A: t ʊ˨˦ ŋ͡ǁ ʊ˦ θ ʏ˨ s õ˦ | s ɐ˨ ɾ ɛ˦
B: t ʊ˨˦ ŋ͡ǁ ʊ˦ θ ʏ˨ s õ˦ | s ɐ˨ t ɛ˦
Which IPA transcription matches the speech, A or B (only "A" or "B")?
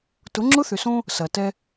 B